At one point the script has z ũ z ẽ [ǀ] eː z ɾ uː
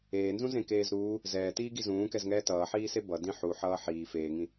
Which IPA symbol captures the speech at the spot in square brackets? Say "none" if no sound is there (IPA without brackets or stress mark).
k